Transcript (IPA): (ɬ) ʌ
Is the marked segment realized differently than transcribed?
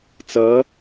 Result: yes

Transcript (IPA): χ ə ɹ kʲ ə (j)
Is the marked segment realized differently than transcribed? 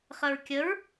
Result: yes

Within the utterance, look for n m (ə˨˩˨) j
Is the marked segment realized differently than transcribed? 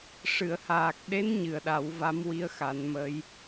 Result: yes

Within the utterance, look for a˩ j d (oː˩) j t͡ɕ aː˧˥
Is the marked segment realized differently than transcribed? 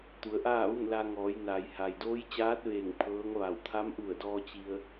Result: yes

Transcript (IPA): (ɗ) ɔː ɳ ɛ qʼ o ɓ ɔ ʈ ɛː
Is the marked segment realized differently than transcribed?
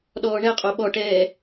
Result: no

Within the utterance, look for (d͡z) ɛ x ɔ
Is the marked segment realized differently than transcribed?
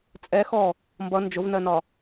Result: yes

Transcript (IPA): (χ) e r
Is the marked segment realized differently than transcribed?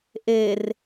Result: yes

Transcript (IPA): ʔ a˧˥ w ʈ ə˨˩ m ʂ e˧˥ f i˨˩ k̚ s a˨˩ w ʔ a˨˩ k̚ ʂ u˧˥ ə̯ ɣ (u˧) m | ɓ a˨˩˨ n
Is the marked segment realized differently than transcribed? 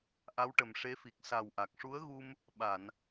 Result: no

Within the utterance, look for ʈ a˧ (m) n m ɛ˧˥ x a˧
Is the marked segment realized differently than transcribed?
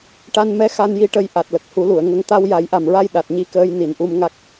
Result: yes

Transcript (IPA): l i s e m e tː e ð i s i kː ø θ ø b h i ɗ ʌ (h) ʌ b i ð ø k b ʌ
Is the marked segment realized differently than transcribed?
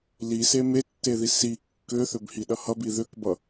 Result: no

